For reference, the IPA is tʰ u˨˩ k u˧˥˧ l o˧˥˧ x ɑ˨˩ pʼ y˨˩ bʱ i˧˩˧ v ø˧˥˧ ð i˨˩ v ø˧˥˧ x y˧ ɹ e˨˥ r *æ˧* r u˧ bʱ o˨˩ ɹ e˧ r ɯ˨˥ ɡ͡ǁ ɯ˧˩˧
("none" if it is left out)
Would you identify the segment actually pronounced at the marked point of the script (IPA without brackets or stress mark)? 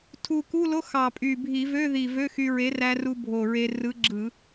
æ˧